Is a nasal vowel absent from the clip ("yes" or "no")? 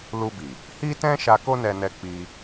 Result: no